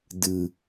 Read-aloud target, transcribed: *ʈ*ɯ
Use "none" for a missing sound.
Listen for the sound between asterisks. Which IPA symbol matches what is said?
d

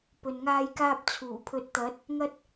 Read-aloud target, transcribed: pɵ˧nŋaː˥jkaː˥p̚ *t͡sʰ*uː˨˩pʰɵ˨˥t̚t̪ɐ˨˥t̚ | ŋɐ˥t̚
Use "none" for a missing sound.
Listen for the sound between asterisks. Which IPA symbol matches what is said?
t͡sʰ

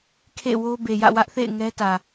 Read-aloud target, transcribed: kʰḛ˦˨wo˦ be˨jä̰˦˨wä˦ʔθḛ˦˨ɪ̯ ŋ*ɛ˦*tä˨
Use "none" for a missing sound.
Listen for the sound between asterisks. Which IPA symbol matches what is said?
ɛ˦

